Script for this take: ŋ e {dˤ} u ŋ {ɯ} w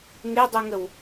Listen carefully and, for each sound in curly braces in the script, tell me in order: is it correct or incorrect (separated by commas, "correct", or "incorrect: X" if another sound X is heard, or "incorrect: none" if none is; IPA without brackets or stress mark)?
correct, incorrect: ə